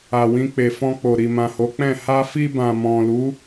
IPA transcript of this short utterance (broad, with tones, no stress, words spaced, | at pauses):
a˨wĩ˧k͡pe˨ fɔ̃˧k͡po˨ ɾi˨mã˨ho˨˦k͡pɛ̃˦˨ ha˧fi˧ bã˨mɔ̃˨lu˨˦